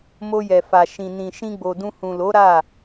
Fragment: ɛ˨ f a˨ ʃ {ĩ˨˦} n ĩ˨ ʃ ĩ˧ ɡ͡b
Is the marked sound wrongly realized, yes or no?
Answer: yes